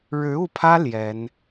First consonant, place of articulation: retroflex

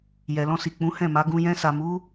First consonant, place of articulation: palatal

